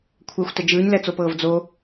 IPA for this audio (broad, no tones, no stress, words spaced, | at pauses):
kʷʰɛxʷtɛ d͡ʒɯːɲlɛt͡sopɤːv d͡zo